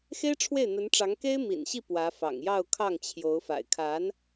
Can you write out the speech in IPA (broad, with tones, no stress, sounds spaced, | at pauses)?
x e˥ ɪ̯ ʈ͡ʂʰ w e˥˩ ɪ̯ n̪ ə˧˥ n ʈ͡ʂ ɑ˧˥ ŋ k e˥ ɪ̯ m ḭ˨˩ n ɕ i˥˩ p w ä˧˥ f ɑ̰˨˩ ŋ j ɑ˥˧ ʊ̯ kʰ ɑ˥˩ ŋ t͡ɕʰ j o˧˥ ʊ̯ f a̰˨˩ ɪ̯ kʰ a˧˥ n